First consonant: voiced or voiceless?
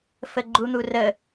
voiceless